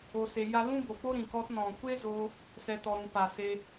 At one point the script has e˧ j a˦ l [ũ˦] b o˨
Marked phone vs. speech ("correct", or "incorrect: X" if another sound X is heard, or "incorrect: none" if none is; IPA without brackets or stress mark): correct